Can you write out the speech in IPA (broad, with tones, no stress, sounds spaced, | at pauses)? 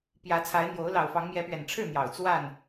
p j ä˨˦ t͡sʰ a˨˦ ɪ̯ n̪ j o˨˦ ʊ̯ l ɑ˨˩ ʊ̯ f ɑ˨˦ ŋ m j ɛ˨˦ p ɥ ɛ˨˩ n ʈ͡ʂʰ ɻ̩˥˨ n̪ j ɑ˨˩ ʊ̯ t͡s w a˥˨ n